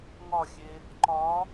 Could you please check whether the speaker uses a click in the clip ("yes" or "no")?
yes